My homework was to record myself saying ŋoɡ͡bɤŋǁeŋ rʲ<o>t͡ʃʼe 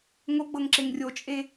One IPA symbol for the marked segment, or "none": o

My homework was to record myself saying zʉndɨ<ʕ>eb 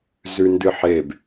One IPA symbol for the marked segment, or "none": ħ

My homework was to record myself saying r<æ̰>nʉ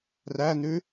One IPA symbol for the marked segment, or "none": æ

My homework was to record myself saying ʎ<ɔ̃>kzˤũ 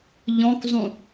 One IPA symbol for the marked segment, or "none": ɔ̃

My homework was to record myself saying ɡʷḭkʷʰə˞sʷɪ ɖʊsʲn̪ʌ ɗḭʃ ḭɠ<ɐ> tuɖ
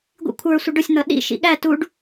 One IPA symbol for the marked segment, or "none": æ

